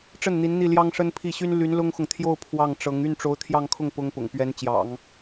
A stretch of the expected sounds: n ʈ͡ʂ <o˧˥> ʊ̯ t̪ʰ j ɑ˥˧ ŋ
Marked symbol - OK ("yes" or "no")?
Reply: yes